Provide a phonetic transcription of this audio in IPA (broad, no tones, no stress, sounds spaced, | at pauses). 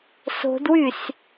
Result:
s o̤ d w y s